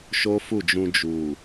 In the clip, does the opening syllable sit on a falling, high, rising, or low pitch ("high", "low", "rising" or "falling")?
high